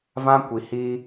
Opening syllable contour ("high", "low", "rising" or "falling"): high